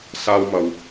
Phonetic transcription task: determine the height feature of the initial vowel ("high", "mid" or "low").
low